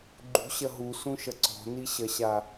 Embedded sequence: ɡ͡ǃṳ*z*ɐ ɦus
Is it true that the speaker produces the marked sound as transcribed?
no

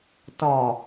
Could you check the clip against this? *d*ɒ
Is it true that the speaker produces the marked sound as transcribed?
no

